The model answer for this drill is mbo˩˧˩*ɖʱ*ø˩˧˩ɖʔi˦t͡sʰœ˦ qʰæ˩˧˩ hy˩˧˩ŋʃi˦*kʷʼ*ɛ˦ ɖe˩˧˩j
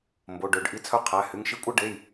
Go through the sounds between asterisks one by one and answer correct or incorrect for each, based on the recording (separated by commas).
incorrect, correct